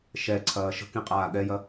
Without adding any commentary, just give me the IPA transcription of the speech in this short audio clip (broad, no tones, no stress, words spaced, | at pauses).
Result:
ʃɛǀʰɐː ʃə̤kĩqʼaː ɠɛjɐ